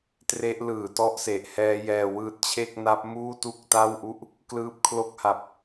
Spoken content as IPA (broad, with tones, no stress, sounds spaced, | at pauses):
t r e˦˥ ʔ l ɯː˨˩ t ɔ˦˥ ʔ s e˨˩ ʔ h ɛː˦˥ j ɛː˧ w ɯː˥˩ t̚ t͡ɕʰ e˥˩ k̚ n a˦˥ p̚ m uː˥˩ t u˥˩ k̚ t a˥˩ w ʔ u˥˩ ʔ | k l ɯː˦˥ p̚ kʰ l o˦˥ k̚ h a˨˩ p̚